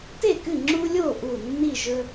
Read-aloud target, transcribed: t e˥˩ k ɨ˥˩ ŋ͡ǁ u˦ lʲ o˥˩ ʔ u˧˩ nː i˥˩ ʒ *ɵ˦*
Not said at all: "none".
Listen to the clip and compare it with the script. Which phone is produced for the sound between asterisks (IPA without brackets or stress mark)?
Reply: ɵ˦